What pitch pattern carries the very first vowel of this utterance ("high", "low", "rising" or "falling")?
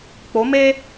rising